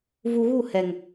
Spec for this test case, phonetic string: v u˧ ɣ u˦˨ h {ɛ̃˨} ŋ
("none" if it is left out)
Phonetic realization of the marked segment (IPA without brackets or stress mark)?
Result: ɛ˨